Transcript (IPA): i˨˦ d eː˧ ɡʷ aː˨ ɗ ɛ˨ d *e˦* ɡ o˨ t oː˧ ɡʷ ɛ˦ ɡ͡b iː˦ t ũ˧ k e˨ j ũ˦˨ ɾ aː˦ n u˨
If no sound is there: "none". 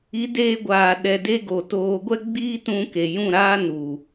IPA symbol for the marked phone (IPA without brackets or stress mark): e˦